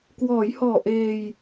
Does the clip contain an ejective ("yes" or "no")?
no